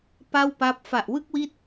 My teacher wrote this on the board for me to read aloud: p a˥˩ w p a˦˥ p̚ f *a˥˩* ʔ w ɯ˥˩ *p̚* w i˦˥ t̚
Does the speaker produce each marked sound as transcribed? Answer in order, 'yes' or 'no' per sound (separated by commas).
no, no